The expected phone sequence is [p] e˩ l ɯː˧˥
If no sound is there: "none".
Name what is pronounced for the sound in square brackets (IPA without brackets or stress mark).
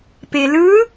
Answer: p